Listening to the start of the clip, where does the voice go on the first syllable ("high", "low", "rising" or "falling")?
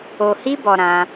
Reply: low